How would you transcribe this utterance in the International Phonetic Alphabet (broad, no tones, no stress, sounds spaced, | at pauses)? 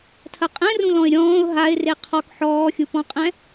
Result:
tʰ ɐ qʼ ɛ̃ r ũ l ɔ̃ ɪ̯ ɾʲ ɔ̃ː ʊ̯ ɦ a ɪ̯ r e qʰ ɔ k ħ ɔː xʲ u p ɔ̃ qʼ ɛ̃